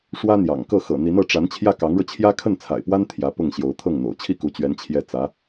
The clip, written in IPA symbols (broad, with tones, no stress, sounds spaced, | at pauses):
ʂ w ä˥ n̪ j ɑ̰˨˩ ŋ k ɤ˥˩ x ɤ̰˨˩ n̪ i˧˥ n ɤ˧˥ ʈ͡ʂ a˧˥ n t͡ɕʰ j ä˥˩ k ɑ˧˥ ŋ ɻ ɤ˧ t͡ɕʰ j ä˥ kʰ ə˥˩ n t͡sʰ a̰˨˩ ɪ̯ p w a˥ n t̪ʰ j ä˧˥ p ʊ˥˩ ŋ ɕ j o˧˥ ʊ̯ t̪ʰ ɤ˥˩ ŋ n̪ o̰˨˩ ʊ̯ t͡ɕʰ i˥˩ k u˧˥ t͡ɕ ɥ ɛ˧˥ n t͡ɕʰ j ɛ˥˩ t͡s ä˧˥